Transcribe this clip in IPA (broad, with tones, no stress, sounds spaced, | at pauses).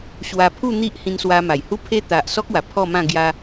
ɕ w a˧ pʰ u˥˧ n̪ i˦ ʔ h ĩ˧ n s w a˧ m a˨˩ j h u˦ pʰ e˦ t̪ a˨ ʔ s ɔ˦ k̚ w a˨˩ pʰ ɔ˥˧ m ã˥˧ ɡ j a˧